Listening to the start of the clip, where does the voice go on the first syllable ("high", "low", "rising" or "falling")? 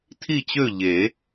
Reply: falling